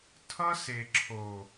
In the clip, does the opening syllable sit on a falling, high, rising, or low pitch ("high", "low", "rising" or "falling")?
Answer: high